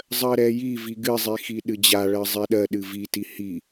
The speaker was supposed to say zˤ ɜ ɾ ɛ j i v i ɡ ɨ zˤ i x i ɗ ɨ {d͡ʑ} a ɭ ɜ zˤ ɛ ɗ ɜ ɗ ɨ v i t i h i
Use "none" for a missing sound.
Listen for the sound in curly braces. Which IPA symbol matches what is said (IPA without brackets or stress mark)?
d͡ʑ